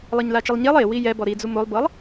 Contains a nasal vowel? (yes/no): no